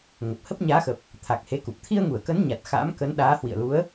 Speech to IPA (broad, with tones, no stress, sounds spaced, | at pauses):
ŋ ə˨˩ p̚ h ə˦˥ p̚ ɲ aː˨˦ x ə˨˩ p̚ | t̪ʰ a˨˩ k̚ h e˨˦ k u˨˩ p̚ t̪ʰ i˧ ə̯ ŋ u˧˩ ə̯ k ə˨˦ n ɲ a˨˩ t̚ x a̰ː˧˥ m k ə˨˦ n ɗ aː˨˦ h w ḭ˧˨ ə̯ l u˨˦ ə̯